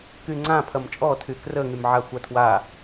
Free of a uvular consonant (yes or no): yes